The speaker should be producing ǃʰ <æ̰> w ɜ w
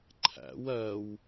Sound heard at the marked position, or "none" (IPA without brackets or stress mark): æ̰